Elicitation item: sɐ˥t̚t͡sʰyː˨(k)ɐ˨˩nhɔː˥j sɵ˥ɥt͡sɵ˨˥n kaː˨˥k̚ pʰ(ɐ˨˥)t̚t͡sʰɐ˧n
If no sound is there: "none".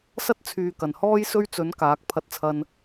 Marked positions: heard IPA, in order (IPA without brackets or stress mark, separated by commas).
k, ɐ˧